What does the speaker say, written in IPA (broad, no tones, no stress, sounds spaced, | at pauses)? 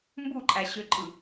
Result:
m b u ǃʼ æ ɕ ø ǃʼ ɯ